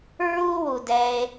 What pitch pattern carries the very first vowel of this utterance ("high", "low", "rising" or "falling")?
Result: high